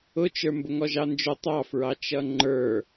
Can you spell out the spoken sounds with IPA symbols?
ʊ t͡ʃ ə˞ m b ʊ ŋ ɔ ʒ ɑ n d͡ʒ ʊ tˤ ɑ f ɹ ɑ t͡ʃ ʌ ŋ͡ǃ ə˞

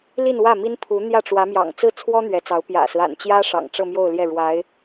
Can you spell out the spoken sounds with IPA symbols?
l i˥˧ n w ä˥˩ m i˥ n pʰ u˧˥ n̪ j ä˥˩ ʈ͡ʂ w ä˧˥ m j ɑ̰˨˩ ŋ t͡s ɹ̩˥˩ t͡sʰ w ɔ˥ n̪ ɥ ɛ˧˥ t͡s ɑ˧˥ ʊ̯ p j ä̰˨˩ s ɹ̩˦ a̰˨˩ n t͡ɕ j ä˥ ʂ ɑ̰˨˩ ŋ ʈ͡ʂ ɤ˥˧ m j o˥˧ ʊ̯ l j ɛ˥˩ ɻ w a˧˥ ɪ̯

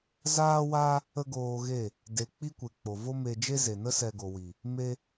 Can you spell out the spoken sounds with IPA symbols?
z aː˧ w a˧ | ə˦ ɡ oː˧ ɣ e˦˨ | d e˨ k͡p i˦ kʷ e˨ k͡p o˨ v o˦ m e˧ d͡ʒ e˦ z e˨ n ə˦ s ɛ˧ ɡ o˨ w i˨ | m e˧

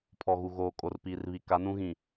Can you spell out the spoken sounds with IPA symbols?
pʰ ɔ˨ ɣ u˨ ɣ oː˨ kʼ o˨ r p iː˨ r β i˨ k a˨˦ n ũ˦ ɣ ĩ˨

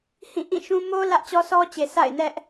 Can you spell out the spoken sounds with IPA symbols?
h ĩ˦˨ ʔ ĩ˦˨ ʃ ũ˦ m o˦ l ä˦ ʔ t͡ɕ ɔ˦ s ɔ˦ t͡ɕ e˨ s a̰˦˨ ɪ̯ n ɛ˦ ʔ

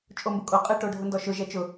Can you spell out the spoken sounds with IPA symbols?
t͡ʃʼ o m b ʊ kʼ o qʼ ɘ ʈ o ɖʱ ʊ n d ɔ ʃ ʊ ʒ ɛ t͡ʃ ʊ

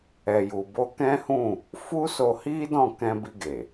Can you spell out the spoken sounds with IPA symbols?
ɛ˨ j u˨ b o˧ k ɛ̃˦ h ũ˦˨ | f u˦ s o˧ h i˦ d ɔ̃˦˨ k ɛ̃˧ b i˧ ɡ e˨

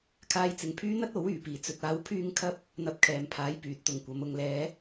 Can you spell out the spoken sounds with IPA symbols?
kʰ aː˧ j t͡s ɪ˨ ŋ pʰ yː˥ n̪ ɐ˥ t̚ o˨˥ w yː˨˩ p iː˨˩ t͡s ɵ˨ t̚ aː˨˧ w pʰ yː˧ ŋ kʰ ɐ˧ p̚ | n̪ ɐ˧ p̚ kʰ ɛː˨ m pʰ aː˨˥ j p yː˨ t̚ t̪ ʊ˨ ŋ kʷ ɐ˨˧ m ʊ˨ ŋ l ɛː˨˧

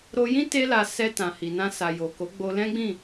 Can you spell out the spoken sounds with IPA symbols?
ɾ o˧ j ĩ˦ t e˦ l a˧ s ɛ˧ t ã˨ h i˨ n ã˧ s a˨ j o˨ k o˨˦ ɡ͡b o˧ l ɛ̃˦ ɡ͡b ĩ˦˨

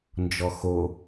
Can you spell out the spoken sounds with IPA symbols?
n d͡ʒ ɔ x o

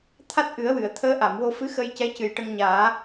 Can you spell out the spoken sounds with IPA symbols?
t̪ʰ a˦˥ t̚ ʔ ɨ˨˩˦ ə̯ w ɨ˨˩˨ ə̯ t̪ʰ əː˧˥ ʔ a˨˩˨ m w o˧ f ɨ˧˥ x ə˧ j c ɛ˧˥ c ɨ˨˩ j ʈ ə˧ ŋ ɲ aː˨˩˦

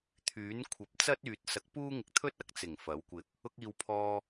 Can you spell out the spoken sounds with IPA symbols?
t̪ʰ yː˨˥ n kʷʰ ɐ˨˥ p̚ t͡s ɐ˥ t̚ yː˨ t̚ s ɐ˨ k̚ p uː˥ ŋ ɪ˧ k̚ t̪ʰ ɵ˥ t̚ ɐ˧ k̚ t͡s ɪ˨˩ ŋ f ɐ˨˥ w kʷ ɪ˧ k̚ | ʊ˧ k̚ iː˨ w pʰ ɔː˧

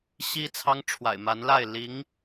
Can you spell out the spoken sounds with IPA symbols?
ɕ i˥ t͡sʰ ɑ˥ ŋ ʈ͡ʂʰ w a̰˨˩ ɪ̯ m a˧˥ n l a˥˩ ɪ̯ l i˧˥ ŋ

